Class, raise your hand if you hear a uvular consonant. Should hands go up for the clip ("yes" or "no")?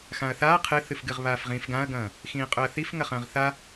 yes